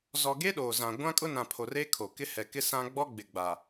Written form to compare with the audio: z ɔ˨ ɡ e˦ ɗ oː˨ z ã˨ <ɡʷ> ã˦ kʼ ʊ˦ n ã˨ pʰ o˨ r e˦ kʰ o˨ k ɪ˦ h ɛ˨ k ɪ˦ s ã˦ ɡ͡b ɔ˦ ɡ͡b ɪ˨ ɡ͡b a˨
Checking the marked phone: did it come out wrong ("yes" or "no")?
no